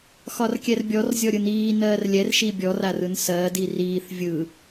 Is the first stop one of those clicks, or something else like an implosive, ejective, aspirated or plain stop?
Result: plain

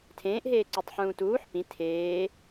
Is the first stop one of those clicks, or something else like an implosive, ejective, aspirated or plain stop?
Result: aspirated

